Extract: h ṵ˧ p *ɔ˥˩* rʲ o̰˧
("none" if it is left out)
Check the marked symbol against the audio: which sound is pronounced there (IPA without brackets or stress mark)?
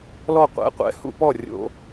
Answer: ɔ˥˩